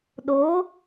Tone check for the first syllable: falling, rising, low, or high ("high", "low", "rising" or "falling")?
rising